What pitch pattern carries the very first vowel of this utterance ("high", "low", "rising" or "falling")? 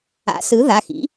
rising